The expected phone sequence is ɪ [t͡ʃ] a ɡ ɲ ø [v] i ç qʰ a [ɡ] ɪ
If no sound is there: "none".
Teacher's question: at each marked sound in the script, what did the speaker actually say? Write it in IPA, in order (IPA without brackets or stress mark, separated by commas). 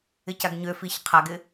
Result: c, f, ɡ